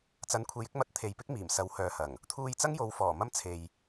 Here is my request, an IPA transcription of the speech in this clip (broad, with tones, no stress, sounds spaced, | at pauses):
t͡s ɐ˨˥ n kʷʰ e˨ j ɪ˨˥ k̚ m ɐ˧ t̚ t̪ʰ e˨ j p ɪ˥ k̚ m iː˨˩ m s ɐ˨˧ w h œː˨ h ɐ˨˩ ŋ | t̪ʰ uː˧ j t͡s ɐ˥ ŋ j o˨˧ w f ɔː˨˩ m ɐ˧ m t͡sʰ e˨ j